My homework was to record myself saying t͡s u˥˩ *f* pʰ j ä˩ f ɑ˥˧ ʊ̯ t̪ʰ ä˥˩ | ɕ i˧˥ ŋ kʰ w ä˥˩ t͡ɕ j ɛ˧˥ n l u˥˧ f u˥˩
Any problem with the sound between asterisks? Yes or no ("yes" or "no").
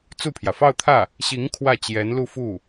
yes